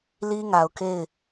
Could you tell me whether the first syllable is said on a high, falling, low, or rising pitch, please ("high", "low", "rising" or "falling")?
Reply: high